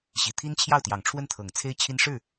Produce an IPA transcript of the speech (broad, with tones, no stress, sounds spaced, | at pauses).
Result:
ɕ i˨˩ t̪ʰ i˥ n t͡ɕʰ j ɑ˥˩ ʊ̯ t̪ j ɑ˨˩ ŋ ʈ͡ʂʰ w ə˥˩ n t̪ʰ ɤ˨˩ ŋ t͡sʰ e˥ ɪ̯ t͡ɕʰ i˥ n ʂ ɻ̩˥˩